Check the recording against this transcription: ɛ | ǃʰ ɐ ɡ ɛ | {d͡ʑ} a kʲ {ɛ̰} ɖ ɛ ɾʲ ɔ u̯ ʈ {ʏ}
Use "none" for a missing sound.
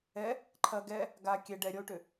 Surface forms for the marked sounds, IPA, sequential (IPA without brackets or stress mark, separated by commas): ɡ, ɛ, ʏ